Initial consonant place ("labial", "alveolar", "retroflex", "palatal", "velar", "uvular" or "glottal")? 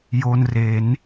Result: palatal